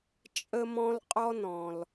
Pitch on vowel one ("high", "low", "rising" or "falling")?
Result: high